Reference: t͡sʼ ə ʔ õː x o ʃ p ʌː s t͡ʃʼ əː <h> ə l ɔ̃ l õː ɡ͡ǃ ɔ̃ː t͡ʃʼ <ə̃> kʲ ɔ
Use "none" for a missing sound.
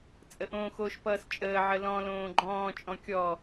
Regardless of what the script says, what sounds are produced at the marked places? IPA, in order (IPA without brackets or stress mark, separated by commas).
ʕ, ɔ̃